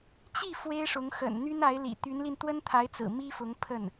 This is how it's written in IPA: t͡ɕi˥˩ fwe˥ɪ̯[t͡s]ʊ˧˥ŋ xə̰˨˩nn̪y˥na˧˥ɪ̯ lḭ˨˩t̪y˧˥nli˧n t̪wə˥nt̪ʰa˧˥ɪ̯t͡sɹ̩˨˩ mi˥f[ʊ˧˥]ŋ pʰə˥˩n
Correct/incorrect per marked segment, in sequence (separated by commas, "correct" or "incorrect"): incorrect, correct